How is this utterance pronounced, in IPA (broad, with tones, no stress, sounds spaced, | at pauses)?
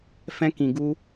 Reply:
f ɛ̃˧ k ĩ˨ ɡ u˧